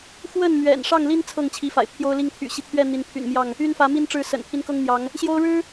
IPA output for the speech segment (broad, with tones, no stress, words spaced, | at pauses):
xwə˥˨nmɥɛ̰˨˩n ʂɑ˥˨ŋli˦n t͡sʰɤ˥˨ŋt͡ɕʰi˨˦fa̰˨˩ɪ̯ pʰjo˦ʊ̯li˥˨ŋ t̪ʰy̰˨˩ɕi˦t̪ʰɥɛ˥˨ n̪i˨˦npʰy̰˨˩nmjɑ˥˨ŋ | y˦nfä˨˦mi˦nʈ͡ʂɻ̩˨˦ sə̰˨˩npʰi˦nkɤ˦ŋn̪jɑ˨˦ŋ | ɕjo˦ʊ̯ɻɻ̩˦